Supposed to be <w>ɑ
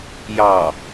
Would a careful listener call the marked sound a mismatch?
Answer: yes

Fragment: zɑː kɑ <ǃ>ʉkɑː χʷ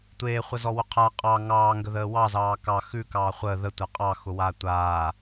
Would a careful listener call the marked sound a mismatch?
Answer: yes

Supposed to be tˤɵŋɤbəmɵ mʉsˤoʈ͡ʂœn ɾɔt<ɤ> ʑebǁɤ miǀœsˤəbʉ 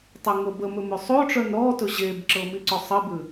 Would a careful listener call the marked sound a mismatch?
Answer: yes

